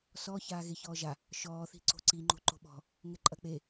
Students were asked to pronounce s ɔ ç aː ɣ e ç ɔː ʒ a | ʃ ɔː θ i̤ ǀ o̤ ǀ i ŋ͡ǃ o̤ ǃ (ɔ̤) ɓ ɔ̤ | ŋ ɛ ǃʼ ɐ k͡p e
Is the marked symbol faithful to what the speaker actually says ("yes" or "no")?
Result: no